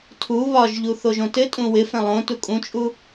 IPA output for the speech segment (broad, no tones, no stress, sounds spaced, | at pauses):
tʰ u β ɒ ʒ ʎ u θ o ʒ õ t ɘ tʼ ũ w ɪ f ɛ̃ lˠ õ t u kʼ ũ t͡ʃʼ u